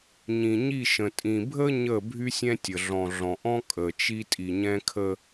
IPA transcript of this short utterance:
ɲĩ˨ ɲi˦˨ʃə̃˨ tʼĩ˨ bʱə˦ ɲəː˦˨bʱy˦sʲɛ̃˦tʲə˨ ɮɔ̃˨ɮɔ̃˨ʔɔ̃˦ kʼəː˨t͡ʃi˦ tʼi˨ɲɛ̃˦kʰə˦

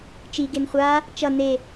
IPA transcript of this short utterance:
t͡ʃiɡen χʷa | t͡ʃʌ ne

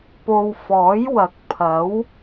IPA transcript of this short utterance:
po˨wfɔː˨˥jwɐ˨˥k̚ pʰɐ˨˥w

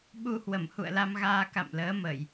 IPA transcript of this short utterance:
ɓu˧ hwə˧˩mhṵ˧˨ə̯la˧m ɣaː˧ka̰˧˨mləː˨˦mə˧˩˨j

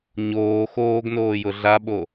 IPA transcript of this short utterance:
ɲoː xoːɡnoːjʊ ɮaɓo

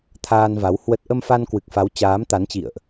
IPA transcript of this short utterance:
t̪ʰaː˧nva˨˦w hwə˦˥t̚ ʔə˧mfa˧nkwɨ˨˩k̚fa˨˦w t͡ɕaː˨˦mt̪a˨˦nt͡ɕḭ˧˨ə̯ʔ

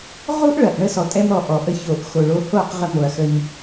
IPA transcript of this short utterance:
ʁu˦ʔɭɐ˨ʔ ɳə˧sɔ˨tʼɛ˧mɾɔ˨ ʔɔ˨ʔə˧ ço˨ʔ xo˨ɭo˧ ho˦˨qʁə˧ mo˨ɐ̯xə˧ɲ

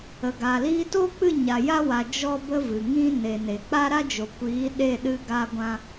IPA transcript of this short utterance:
ə˨ɡa˨ liː˧toː˦k͡pɨ˦˨ ɲa˨ja˦wa˨ d͡ʒɔ˦ bə˦vɨ˨ŋĩ˦ ne˨ne˨k͡pa˦ ɾa˦d͡ʒo˨kʷiː˨˦ ɗe˦˨ɗɨ˧ ɡa˦ɡʷã˦

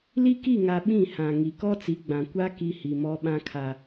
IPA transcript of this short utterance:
li˦ki˦˨ŋa˨ ɓĩ˦˨hã˨ ŋi˨ kɔ˦t͡si˨˦ɡ͡bã˨ kʷa˦ ki˦hi˨mɔ˦ ɓã˦kʰa˨

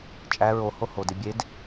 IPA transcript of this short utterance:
t͡ʃʼæ ɹo hohode bʲed

